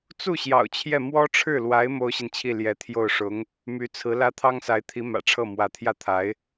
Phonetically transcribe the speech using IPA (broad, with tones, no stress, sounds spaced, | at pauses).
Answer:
t͡s u˥˩ ɕ j ɑ̰˨˩ ʊ̯ t͡ɕʰ j ɛ˥˩ m w ɔ˥ ʈ͡ʂʰ ɻ̩˥˩ l w a˧˥ ɪ̯ m o˥ ʊ̯ ɕ i˨ n t͡ɕʰ i˥˩ l j ɛ˧˥ t̪ʰ j o˥˩ ʊ̯ ʂ ʊ˧˥ ŋ | m y˧˥ t͡sʰ ɹ̩˧˥ l ä˥ t̪ʰ ɑ˥ ŋ s a˧˥ ɪ̯ t̪ʰ i˧˥ m ä̰˨˩ ʈ͡ʂʰ ɤ˥˩ m w ä˧˥ t̪ʰ j ä˥˩ t̪ʰ a˧˥ ɪ̯